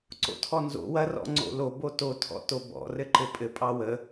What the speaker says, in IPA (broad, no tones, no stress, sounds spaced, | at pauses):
ǀ o̰ tʰ ɔ n z o̰ w ɐ r ɔ̰ ŋ͡ǀ o̰ l o b o t o tʰ ɔ̰ t o b ɔ̰ r ɘ ǃ ɘ pʼ ɘ pʼ ɑ w ə